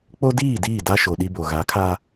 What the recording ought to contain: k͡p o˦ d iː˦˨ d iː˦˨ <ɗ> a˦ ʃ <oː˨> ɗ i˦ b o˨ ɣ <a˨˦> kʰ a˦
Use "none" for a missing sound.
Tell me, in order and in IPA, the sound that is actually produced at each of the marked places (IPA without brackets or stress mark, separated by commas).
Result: d, o˨, a˨˦